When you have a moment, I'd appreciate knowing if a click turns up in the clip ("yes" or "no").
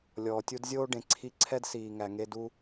yes